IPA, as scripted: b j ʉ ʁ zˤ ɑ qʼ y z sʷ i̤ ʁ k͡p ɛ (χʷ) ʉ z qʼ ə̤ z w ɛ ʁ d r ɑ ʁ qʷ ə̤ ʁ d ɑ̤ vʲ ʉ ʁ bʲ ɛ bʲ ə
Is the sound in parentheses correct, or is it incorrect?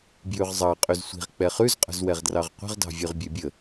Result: incorrect